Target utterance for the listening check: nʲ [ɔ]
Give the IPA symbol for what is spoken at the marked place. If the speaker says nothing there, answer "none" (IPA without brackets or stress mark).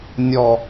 ɔ